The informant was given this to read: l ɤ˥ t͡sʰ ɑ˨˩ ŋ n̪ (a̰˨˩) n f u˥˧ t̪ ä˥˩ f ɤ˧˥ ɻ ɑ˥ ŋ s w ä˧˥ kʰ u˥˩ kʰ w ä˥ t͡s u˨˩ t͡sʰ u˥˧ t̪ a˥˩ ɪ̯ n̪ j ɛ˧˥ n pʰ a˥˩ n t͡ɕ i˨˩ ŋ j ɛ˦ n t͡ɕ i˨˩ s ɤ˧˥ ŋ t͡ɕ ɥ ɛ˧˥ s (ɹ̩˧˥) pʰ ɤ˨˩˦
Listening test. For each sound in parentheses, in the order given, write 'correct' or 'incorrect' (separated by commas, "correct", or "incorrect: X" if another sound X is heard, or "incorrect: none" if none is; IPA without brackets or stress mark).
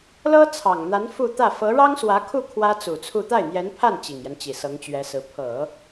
incorrect: a˧˥, correct